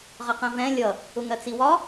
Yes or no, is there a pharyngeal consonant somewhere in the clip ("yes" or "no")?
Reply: no